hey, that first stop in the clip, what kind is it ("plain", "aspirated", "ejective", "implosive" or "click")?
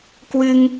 plain